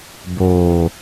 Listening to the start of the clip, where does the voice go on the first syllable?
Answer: low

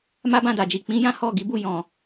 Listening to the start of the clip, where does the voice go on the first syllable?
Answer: high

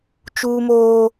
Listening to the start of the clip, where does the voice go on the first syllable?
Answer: high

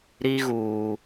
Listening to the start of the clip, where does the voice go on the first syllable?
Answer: high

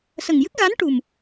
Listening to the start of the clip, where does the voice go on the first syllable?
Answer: low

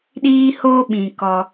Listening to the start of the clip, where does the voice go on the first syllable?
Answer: high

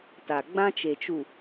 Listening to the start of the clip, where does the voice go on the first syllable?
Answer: low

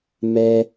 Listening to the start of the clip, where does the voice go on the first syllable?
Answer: high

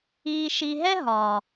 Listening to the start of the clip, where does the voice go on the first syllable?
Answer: low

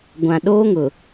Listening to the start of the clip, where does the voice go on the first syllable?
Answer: low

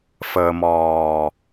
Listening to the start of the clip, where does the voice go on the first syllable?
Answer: low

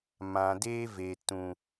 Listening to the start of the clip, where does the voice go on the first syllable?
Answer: low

